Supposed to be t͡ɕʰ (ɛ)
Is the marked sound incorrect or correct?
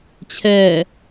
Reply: correct